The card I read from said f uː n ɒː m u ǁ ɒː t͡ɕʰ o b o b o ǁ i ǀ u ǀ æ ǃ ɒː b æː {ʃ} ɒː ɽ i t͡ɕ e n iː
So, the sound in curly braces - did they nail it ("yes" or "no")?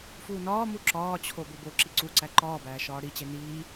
yes